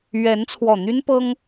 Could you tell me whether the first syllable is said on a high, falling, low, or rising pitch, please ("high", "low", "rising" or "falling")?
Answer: rising